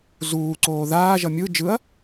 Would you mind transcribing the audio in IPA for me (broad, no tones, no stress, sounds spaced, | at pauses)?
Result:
z uː ǀ oː ð aː ʒ ʌ mʲ ɯ d͡ʒ ɯ ɐ̯